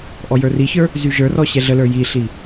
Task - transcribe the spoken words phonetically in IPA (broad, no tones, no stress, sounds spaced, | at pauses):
ʔ ɔ j ə˞ r i ç ə˞ | z y ʒ ə˞ r ɔ ɕ ɛ ɮ ə l ə˞ j i ɬ i